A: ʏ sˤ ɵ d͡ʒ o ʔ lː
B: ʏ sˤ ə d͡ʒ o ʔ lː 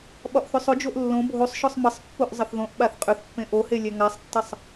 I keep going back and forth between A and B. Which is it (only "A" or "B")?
A